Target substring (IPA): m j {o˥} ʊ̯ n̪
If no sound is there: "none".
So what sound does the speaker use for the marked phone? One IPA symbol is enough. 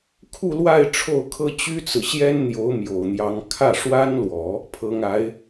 o˨˩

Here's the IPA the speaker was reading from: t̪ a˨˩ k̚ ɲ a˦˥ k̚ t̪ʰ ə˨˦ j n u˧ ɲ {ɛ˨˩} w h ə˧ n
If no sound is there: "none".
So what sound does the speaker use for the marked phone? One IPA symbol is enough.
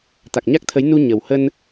ə˨˩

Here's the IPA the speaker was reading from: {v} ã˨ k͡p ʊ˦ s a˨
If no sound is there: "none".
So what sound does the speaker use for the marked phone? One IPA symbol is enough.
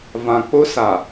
v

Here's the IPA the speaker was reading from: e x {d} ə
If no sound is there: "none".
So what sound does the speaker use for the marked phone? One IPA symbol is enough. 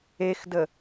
d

